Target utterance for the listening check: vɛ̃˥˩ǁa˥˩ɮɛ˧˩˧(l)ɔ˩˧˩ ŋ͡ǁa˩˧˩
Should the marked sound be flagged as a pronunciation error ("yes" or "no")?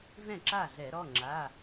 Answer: yes